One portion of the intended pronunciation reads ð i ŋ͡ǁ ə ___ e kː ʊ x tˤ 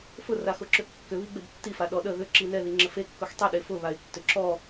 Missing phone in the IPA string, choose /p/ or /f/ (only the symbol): f